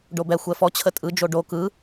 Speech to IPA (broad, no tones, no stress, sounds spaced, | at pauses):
ɖ o b ɛ xʷ ɛ f ɔ t͡ɕʰ ə tʼ ɯ d͡ʒ o ɖ o k ɯ